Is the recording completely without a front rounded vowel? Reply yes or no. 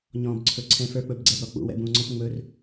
yes